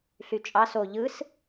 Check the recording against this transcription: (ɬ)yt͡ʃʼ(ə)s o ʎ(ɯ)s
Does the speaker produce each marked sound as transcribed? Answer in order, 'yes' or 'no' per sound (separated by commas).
yes, no, yes